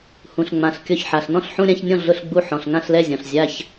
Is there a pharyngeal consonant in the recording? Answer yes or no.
yes